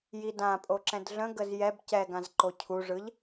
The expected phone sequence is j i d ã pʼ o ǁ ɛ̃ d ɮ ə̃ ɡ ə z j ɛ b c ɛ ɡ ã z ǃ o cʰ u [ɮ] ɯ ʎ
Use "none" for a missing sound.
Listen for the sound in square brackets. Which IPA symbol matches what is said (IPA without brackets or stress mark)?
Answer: ʐ